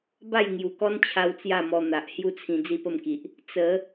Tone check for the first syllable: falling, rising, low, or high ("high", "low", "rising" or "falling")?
falling